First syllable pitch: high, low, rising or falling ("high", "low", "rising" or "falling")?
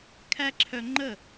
high